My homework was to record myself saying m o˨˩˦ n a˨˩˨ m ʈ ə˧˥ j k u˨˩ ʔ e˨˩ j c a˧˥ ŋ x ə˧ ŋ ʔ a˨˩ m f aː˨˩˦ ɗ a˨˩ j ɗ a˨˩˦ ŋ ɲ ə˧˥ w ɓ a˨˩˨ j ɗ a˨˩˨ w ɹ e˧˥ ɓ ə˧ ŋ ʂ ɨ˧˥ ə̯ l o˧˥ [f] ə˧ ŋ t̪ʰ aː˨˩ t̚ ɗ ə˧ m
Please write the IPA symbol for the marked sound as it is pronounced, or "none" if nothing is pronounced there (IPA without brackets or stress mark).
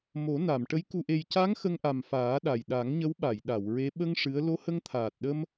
h